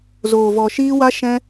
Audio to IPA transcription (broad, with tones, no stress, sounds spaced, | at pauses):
z oː˧ v ɔ˧ ʃ iː˦ w a˦ ʃ ɛ̃˦